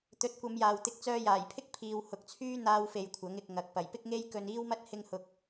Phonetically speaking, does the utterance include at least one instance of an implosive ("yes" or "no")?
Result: no